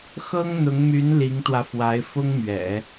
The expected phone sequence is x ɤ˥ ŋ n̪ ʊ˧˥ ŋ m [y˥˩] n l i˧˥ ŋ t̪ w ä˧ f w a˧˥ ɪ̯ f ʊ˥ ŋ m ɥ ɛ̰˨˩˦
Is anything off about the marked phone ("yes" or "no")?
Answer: yes